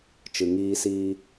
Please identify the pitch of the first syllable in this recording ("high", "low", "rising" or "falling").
low